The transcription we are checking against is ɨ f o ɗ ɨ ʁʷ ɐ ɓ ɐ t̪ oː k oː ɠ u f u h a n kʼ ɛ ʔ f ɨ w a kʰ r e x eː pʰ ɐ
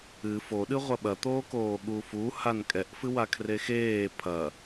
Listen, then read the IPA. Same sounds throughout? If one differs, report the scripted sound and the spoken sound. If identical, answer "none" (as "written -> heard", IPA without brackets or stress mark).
none